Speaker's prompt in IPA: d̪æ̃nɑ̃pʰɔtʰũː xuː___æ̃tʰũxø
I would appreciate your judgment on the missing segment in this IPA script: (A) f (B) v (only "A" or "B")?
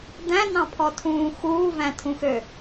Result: B